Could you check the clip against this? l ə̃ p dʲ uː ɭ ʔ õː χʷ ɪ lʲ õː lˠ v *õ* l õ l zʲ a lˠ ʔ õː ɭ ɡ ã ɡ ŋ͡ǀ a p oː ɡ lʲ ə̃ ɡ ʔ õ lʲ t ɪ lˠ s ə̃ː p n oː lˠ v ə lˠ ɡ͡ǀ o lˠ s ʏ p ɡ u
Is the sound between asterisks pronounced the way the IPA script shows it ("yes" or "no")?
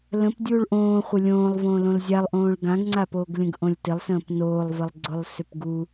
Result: no